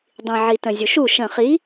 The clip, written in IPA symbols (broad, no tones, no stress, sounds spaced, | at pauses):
dˤ ĩ ʕ i t ə̃ zʲ u ʃ u ʃ ə̃ χ i